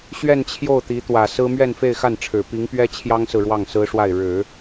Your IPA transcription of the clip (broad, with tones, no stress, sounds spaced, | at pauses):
ɕ ɥ ɛ˥˧ n t͡ɕʰ j o˥˩ ʊ̯ t̪ i˧˥ t̪ w ä˨˩ s ɹ̩˥ m ɥ ɛ˥˧ n f e˥˧ ɪ̯ x a˥˩ n ʈ͡ʂʰ ɻ̩˨˩ p i˧˥ ŋ p ɥ ɛ˥ t͡ɕʰ j ɑ˥ ŋ s ɹ̩˨ ɻ w ɑ˥˩ ŋ s ɹ̩˥ ʂ w a˥˩ ɪ̯ ɻ ɻ̩˨˩˦